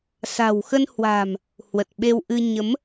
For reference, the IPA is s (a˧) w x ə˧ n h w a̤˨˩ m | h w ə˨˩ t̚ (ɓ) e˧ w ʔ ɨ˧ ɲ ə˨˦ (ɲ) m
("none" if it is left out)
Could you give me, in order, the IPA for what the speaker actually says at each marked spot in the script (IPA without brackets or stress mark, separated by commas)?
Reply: a̤˨˩, ɓ, none